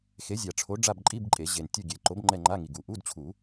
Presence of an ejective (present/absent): present